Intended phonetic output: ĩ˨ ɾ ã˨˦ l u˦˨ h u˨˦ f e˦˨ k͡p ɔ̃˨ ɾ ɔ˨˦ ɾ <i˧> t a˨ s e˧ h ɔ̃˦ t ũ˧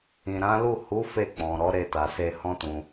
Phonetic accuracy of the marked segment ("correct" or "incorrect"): incorrect